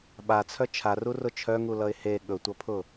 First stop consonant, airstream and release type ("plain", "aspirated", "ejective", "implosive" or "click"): implosive